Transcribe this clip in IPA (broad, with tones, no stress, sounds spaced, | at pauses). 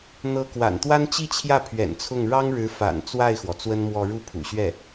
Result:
n̪ ɤ˧˥ k w a̰˨˩ n t̪ w a˥ n t͡ɕ i˥˧ t͡ɕʰ j ä˥˩ pʰ ɥ ɛ̰˨˩ n t͡sʰ ʊ˥˩ ŋ ɻ ɑ˥ ŋ ɻ ɻ̩˧˥ f a̰˨˩ n t͡s w a˥˩ ɪ̯ x w ɔ˩ t͡s w ə˥ n m w ɔ˥˧ ɻ u˥˩ pʰ ṵ˨˩ ɕ ɥ ɛ˥˩